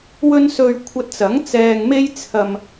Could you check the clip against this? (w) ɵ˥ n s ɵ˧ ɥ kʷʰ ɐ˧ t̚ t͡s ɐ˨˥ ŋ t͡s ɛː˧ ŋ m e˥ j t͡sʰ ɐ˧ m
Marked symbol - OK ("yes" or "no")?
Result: yes